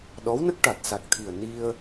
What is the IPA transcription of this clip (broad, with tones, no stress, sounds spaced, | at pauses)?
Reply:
ɗ ɔ˧˥ w n ə˦˥ k̚ ʈ a˨˩ t̚ s a˨˩ k̚ t̪ʰ i˨˩ ə̯ n i˧ ə̯